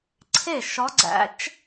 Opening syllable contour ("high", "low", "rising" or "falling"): falling